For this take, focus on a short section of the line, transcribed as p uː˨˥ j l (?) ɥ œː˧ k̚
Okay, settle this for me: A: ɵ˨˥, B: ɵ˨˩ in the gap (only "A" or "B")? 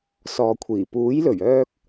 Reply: B